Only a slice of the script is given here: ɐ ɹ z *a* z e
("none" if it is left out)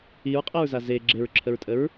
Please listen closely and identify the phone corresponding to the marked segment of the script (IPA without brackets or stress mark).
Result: a